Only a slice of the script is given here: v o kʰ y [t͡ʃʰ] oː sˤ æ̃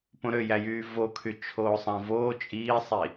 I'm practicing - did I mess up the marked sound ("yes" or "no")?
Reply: no